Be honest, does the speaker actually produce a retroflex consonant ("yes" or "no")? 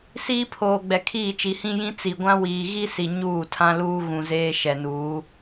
no